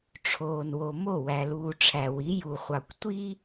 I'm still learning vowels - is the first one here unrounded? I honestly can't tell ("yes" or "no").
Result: no